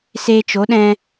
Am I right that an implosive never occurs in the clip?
no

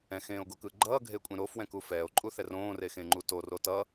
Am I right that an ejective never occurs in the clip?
no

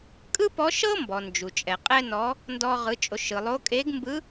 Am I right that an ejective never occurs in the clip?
no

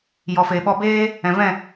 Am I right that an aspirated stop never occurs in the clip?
yes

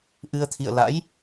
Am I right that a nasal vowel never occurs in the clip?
yes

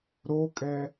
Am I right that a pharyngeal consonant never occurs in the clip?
yes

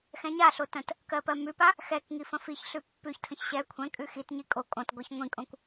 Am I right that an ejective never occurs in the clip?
no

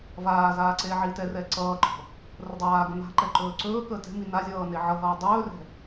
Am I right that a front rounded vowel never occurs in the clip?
yes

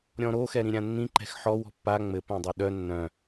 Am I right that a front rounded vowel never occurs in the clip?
no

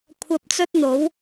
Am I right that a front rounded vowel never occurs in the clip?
yes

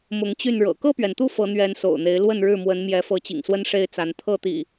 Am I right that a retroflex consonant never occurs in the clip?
no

